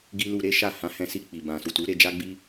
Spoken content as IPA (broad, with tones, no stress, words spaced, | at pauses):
ɡi˦ lu˧ɾe˦ʃa˦˨ hã˨˦hɛ̃˧ si˧k͡pi˨ bã˨su˨tu˨˦ ɾe˧d͡ʒa˦ɡ͡bi˦